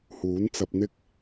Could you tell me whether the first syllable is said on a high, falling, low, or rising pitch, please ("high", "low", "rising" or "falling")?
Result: rising